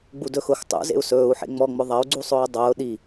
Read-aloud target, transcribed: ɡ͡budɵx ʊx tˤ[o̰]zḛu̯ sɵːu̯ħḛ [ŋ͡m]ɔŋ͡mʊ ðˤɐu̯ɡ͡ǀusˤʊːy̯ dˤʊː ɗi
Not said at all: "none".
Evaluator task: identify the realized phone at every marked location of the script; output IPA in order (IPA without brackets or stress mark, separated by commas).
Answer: ṵ, ŋ͡m